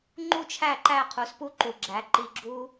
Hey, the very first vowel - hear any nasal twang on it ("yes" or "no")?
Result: no